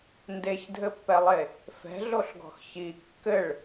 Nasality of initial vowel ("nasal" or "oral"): oral